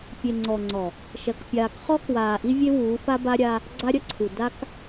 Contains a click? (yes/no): yes